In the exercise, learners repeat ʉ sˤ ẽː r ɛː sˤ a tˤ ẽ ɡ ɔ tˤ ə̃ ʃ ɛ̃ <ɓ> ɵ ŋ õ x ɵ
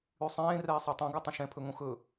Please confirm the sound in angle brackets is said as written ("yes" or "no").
no